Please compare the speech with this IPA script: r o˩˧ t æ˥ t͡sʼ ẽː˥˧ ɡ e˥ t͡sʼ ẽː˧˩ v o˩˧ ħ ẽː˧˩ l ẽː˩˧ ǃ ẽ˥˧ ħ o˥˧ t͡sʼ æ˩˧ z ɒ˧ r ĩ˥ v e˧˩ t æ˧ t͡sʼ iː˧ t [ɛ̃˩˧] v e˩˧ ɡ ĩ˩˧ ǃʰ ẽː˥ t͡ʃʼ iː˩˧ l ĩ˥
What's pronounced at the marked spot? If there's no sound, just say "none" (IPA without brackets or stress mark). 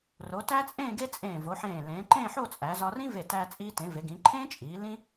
ẽ˩˧